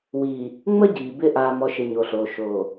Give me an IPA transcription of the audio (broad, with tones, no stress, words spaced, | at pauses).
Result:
wiː˨ | ŋ͡mə˦ɟiː˨ bɪ˦ ʔaː˨mɔ˨ʃɪ˨ ɲo˨ɬoː˨ ʃoː˨